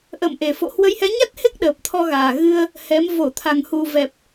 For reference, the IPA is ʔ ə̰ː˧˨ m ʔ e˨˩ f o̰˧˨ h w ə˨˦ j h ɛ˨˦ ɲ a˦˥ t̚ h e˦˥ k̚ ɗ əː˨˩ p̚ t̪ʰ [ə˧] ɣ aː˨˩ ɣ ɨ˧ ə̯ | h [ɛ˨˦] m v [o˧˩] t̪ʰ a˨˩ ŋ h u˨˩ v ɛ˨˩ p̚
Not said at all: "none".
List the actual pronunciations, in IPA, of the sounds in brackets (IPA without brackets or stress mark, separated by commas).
ɔ˧, ɛ˨˦, o˧˩